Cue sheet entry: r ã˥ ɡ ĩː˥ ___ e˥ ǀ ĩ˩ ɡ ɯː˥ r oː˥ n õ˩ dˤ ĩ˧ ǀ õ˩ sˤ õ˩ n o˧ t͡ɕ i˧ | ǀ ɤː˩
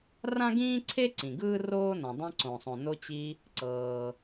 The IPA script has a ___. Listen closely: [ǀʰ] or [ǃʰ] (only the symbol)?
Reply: ǀʰ